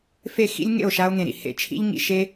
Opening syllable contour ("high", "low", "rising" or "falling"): falling